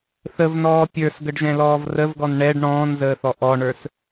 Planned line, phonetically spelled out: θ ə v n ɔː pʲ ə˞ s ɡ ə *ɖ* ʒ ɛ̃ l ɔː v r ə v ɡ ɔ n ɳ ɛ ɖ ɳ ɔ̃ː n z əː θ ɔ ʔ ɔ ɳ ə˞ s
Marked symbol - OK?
yes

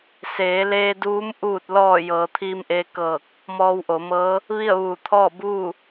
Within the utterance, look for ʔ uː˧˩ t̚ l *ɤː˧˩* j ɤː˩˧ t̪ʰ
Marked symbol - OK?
no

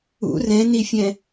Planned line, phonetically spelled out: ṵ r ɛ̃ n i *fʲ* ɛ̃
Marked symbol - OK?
yes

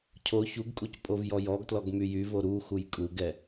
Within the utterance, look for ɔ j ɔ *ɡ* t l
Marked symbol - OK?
yes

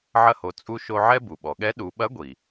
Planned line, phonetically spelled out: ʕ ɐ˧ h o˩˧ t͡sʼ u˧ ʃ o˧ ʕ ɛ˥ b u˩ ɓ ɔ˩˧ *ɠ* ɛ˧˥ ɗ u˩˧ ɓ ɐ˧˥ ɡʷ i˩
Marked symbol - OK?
yes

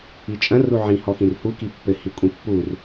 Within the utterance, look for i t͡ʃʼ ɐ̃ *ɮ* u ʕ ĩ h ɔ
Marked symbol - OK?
no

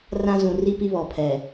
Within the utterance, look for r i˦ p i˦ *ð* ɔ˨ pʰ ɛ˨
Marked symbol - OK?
no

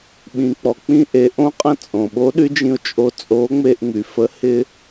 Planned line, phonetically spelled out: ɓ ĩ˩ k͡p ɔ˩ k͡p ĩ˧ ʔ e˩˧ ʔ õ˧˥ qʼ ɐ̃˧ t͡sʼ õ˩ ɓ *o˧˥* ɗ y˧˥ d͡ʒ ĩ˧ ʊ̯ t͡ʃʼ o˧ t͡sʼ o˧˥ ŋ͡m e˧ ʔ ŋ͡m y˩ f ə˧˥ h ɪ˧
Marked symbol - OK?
yes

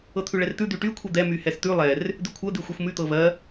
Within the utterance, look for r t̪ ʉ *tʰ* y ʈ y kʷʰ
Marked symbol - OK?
no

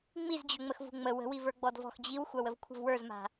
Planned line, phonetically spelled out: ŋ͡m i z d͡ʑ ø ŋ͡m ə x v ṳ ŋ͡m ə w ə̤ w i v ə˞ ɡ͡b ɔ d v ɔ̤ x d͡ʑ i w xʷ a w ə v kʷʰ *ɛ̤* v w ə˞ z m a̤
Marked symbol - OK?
no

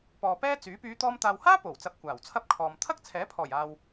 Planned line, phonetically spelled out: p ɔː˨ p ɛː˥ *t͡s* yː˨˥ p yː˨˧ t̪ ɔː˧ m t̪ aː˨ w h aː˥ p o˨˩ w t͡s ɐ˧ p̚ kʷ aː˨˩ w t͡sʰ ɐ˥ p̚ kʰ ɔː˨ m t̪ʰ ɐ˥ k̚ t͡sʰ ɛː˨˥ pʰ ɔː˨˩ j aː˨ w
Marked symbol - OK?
yes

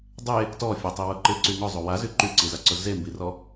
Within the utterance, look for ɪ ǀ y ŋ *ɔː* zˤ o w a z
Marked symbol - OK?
no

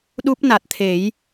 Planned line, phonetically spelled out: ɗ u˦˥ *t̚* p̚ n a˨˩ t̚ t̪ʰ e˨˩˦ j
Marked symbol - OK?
no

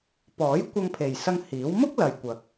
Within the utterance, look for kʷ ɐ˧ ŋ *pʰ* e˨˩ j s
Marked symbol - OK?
yes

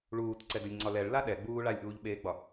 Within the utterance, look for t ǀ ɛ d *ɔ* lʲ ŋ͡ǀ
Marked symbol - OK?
no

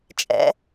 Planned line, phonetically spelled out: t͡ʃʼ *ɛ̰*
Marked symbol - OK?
yes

